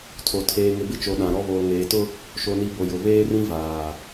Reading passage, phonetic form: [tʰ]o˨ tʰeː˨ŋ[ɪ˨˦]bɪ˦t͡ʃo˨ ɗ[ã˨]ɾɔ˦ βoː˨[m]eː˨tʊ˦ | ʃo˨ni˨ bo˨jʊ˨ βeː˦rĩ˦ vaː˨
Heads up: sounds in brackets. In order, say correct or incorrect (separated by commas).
correct, incorrect, correct, incorrect